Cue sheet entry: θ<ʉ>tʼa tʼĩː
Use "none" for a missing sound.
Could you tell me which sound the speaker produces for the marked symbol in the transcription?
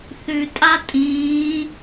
ʉ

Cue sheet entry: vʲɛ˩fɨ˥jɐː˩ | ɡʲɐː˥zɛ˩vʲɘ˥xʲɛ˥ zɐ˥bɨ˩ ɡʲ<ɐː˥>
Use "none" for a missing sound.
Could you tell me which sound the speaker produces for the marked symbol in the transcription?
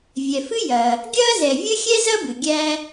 æː˥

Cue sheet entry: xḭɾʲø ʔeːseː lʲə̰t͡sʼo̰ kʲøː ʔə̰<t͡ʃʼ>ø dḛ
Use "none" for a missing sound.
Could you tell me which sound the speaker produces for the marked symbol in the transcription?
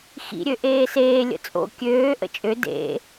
t͡ʃʼ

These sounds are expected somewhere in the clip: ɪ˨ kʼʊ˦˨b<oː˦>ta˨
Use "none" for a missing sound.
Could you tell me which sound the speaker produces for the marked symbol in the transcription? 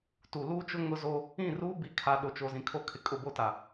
o˦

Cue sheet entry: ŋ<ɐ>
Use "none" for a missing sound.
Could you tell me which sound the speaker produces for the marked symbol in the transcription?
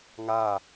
a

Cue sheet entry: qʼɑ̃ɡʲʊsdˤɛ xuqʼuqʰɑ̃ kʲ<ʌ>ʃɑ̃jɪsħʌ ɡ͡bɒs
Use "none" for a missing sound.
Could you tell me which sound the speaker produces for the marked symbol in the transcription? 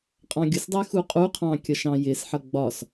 ʌ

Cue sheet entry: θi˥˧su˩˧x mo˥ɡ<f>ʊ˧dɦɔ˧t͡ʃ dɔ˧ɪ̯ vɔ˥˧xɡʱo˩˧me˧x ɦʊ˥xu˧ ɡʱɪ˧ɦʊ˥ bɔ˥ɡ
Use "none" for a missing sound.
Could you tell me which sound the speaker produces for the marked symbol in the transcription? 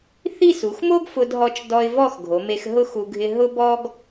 f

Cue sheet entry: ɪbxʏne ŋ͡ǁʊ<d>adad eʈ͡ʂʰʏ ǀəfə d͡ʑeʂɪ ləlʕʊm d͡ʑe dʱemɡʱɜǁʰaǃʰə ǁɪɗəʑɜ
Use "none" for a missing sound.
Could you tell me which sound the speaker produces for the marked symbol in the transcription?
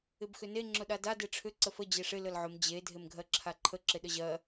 ɗ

